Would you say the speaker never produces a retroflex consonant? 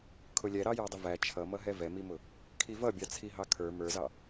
yes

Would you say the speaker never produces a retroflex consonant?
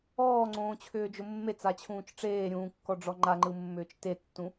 no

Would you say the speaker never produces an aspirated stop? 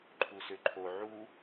no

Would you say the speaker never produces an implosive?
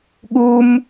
no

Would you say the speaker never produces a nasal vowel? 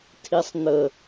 yes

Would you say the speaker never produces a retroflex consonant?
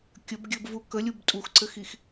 yes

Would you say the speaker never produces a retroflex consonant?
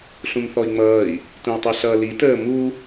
yes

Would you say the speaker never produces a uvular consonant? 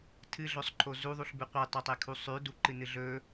no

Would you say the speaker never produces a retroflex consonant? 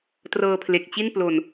yes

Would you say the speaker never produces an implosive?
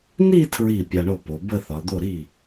yes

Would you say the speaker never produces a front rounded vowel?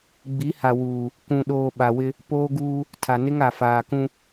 yes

